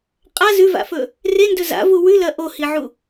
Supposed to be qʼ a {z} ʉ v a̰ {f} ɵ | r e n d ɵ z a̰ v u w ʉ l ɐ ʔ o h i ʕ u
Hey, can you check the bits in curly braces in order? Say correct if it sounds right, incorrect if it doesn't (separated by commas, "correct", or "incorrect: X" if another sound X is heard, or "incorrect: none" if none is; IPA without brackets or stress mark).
correct, correct